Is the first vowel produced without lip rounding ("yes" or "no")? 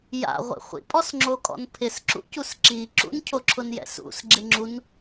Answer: yes